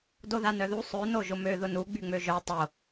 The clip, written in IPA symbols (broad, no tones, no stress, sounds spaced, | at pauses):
d o ð a n œ ð u sˤ ø n o ʒ ʊ m ø ð ʊ n u ɡ͡b y ŋ͡m ø ʒ œ tˤ o